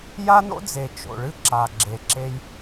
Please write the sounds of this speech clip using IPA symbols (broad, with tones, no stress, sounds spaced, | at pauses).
j a˦ n o̰˦ d͡z e˨ t͡ʃ o̰˨ ɭ ɨ˦ ǁ a˨ ɡ͡ǁ e˨ ǁ e˧ j